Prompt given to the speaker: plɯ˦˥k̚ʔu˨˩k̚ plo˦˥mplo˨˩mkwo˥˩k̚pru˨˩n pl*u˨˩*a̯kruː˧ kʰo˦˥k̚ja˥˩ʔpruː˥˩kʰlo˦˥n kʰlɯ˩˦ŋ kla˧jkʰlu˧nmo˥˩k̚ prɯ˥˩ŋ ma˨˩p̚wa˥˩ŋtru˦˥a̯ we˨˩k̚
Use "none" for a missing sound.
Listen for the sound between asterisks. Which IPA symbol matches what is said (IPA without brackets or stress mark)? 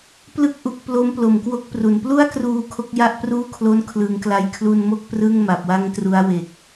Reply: u˥˩